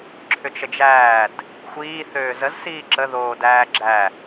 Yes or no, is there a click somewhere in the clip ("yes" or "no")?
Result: yes